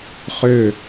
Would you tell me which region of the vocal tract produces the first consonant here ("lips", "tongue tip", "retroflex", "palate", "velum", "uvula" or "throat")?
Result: uvula